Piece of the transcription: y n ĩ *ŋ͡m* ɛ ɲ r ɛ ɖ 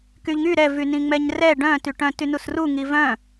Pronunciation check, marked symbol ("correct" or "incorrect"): correct